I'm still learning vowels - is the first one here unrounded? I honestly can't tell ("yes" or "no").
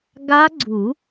yes